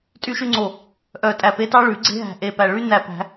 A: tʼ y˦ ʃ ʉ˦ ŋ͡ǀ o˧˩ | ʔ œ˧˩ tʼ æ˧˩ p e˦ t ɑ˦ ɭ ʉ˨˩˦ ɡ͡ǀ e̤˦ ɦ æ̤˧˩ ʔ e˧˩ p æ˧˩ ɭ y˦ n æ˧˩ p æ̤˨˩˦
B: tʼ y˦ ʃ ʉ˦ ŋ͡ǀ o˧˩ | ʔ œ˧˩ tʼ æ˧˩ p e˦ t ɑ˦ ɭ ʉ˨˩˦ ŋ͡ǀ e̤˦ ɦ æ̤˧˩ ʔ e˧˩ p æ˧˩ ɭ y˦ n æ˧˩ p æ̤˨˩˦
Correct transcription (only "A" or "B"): A